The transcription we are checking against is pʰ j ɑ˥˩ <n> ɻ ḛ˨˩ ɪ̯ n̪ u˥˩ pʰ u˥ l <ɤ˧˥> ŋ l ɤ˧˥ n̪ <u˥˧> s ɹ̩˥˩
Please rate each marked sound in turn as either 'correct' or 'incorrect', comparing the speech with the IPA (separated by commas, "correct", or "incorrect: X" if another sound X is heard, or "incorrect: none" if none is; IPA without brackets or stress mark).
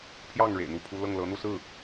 incorrect: ŋ, incorrect: ɤ˥˩, correct